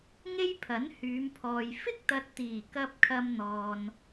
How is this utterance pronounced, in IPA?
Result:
ŋ e˥ j pʰ ɐ˨˥ n h yː˨˧ m pʰ ɔː˨ j f ɪ˥ k̚ t̪ ɐ˨ t̚ t̪ iː˨˩ k ɐ˧ p̚ kʰ ɐ˧ m n̪ ɔː˨ n

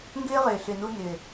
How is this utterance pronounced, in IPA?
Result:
ŋ ɡ ʏː˦ ʁ ʏː˨ ɬ ʏ˨ n u˧ n ʏ˨

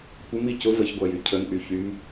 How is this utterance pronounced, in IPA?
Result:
kʷ ə m i c ʊ v ə ç ɡʷ a j y cʰ ə n ʔ y ç y m

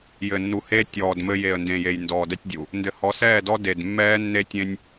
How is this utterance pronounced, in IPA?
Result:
j ɘ˨ nː u˨ h eː˦ tʲ ɔː˨ d m ɘ˦ j e˨ ə̯ n d ẽ˨ j e˨ j n d ɔː˨ d ɛ˦ tʲ dʲ u˨ | n d ɘ˨ h ɔ˨˦ s ɛː˦˨ d ɔ˦ d e˨ d mː ɛː˦ nː e˦ tʲ ẽ˦ nʲ

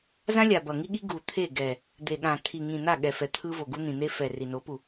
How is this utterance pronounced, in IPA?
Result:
z ã˦ lʲ a˨ b ʌ˨ ŋ i˦ ɠ i˦ ɡ u˨ t̪ʰ e˦˨ ɡ ɛ˨ | d̪ e˨ ɠ ã˨ t̪ʰ i˨ ŋ ĩ˨ n̪ a˦˨ ɠ ɛ˨ f ɛ˨ t̪ʰ ɯ˦ v o˨ ɡ u˦ n̪ ĩ˨ n̪ e˦ f ɛ˨ r i˨ n o˨˦ p u˨

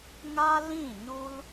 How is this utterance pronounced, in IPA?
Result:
ŋ a˦ l ĩ˦˨ ɲ u˦ l

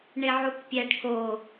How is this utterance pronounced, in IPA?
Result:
ɳ e ʕ u k pʲ æ ɖ k o

